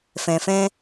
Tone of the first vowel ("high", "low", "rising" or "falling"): low